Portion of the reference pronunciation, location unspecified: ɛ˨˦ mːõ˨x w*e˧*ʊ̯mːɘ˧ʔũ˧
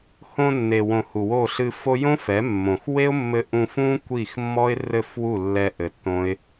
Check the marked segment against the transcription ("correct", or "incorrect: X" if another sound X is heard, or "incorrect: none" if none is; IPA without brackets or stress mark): incorrect: e˦